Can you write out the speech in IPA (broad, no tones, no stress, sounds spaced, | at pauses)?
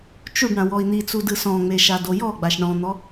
t͡ʃ u ɖ ɳ ã w ɔ i̯ n̪ i t͡s u d ɯ s ɔ̃ ŋ͡m e ʃ a d o j ɔ ɡ͡b a ʃ ɳ ɔ̃ n̪ ɔ